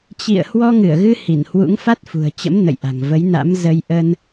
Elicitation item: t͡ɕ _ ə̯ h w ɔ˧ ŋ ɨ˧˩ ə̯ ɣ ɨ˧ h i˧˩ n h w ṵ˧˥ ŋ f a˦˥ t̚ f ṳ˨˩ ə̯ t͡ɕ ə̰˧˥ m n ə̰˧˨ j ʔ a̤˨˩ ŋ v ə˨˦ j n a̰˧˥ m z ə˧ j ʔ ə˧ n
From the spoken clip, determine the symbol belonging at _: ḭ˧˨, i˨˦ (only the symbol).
ḭ˧˨